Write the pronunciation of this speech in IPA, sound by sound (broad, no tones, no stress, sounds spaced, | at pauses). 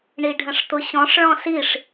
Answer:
ɳ i ɖʱ ə̃ ʂ t̪ ʊ ɕ ɔ̃ ʂ ɭ ɔ̃ s i ʂ